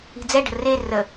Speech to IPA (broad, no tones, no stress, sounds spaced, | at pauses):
i̤ d͡z ɛ ɖ ə̤ r e r ə